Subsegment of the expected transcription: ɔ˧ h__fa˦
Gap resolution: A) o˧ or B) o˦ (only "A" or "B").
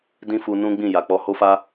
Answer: B